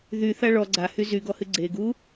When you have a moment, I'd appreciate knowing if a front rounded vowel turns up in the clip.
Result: yes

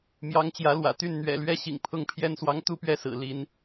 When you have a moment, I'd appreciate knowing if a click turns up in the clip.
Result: no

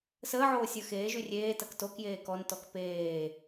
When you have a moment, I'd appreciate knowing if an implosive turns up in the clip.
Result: no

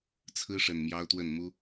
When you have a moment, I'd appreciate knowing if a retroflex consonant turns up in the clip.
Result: yes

